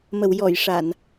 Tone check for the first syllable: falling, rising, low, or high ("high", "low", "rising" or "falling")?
low